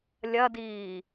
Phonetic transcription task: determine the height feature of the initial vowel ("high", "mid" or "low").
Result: low